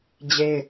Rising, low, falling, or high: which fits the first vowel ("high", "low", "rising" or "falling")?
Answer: high